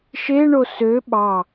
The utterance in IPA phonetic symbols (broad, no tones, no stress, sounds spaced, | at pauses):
ʃ e ɳ o s ø ɓ ɑ